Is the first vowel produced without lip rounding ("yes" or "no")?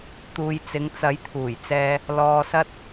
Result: no